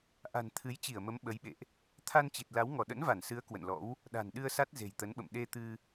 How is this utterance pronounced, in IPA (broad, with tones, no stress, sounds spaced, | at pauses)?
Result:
ʔ a̤˨˩ n t̪ʰ ɨ˨˦ j t͡ɕ i˧˩ ə̯ m ə˨˦ m ɓ ə˨˦ j ɓ ḛ˧˨ ʔ | t̪ʰ a˧ n t͡ɕ i˨˩ t̚ l a˨˦ w ŋ ɔ˧˩ ɗ ə̰˧˥ n v a˧˩ n s ɨ˨˦ ə̯ k w ə̰˧˨ n l ɔ̰˧˥ w | ɗ a̤˨˩ n ɗ ɨ˧ ə̯ s a˦˥ t̚ z e̤˨˩ j t̪ ə˨˦ n ɓ ə̰˧˨ m ɗ e˧ t̪ ɨ˧